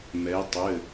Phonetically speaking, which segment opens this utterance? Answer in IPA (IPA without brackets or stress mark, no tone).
m